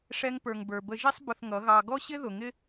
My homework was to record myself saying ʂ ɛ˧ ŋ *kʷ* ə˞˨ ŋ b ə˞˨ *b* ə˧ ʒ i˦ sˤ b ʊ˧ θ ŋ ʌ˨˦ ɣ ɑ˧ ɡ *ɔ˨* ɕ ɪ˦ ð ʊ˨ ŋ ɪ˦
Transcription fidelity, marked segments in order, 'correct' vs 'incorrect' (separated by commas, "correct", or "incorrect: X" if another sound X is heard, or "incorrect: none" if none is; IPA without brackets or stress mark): incorrect: p, correct, incorrect: ɔ˦